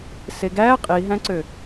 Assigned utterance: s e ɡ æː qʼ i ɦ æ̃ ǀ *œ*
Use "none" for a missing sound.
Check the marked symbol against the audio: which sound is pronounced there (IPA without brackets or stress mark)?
ø